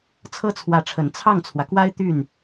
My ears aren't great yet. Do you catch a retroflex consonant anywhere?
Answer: yes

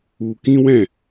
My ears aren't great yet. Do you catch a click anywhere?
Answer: no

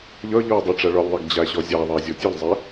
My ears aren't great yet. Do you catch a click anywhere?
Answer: no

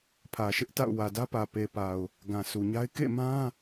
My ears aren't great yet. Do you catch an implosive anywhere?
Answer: no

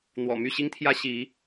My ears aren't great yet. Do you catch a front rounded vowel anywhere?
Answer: yes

